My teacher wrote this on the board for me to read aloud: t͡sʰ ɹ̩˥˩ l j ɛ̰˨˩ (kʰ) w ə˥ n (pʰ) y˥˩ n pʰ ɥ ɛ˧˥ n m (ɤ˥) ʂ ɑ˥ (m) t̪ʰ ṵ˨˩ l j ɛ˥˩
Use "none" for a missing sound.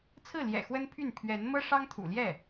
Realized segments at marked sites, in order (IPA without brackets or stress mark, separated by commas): x, pʰ, ɤ˥, ŋ